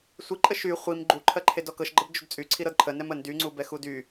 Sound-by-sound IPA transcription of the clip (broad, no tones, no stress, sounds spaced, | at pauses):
sʷ i ǃʼ ə ʃ y χʷ i m ɡ͡ǃ u ǃʰ ɜ ǃʰ e d ɔ k ɤ ʃ ɡ͡ǃ ə b d͡ʒ u d t͡sʼ y ǀʰ i ɾ ɤ d ǃʰ ə n ɛ m ə n d y ŋ͡ǀ u b ɛ x u d y